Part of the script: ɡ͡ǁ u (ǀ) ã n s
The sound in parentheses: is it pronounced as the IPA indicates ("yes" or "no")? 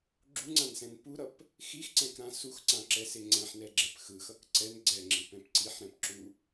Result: no